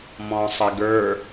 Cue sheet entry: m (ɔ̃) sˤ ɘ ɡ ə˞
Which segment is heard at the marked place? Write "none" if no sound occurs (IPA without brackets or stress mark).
ɔ̃